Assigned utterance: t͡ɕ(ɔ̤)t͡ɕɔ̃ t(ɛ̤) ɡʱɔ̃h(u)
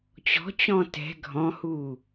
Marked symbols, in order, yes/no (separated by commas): yes, yes, yes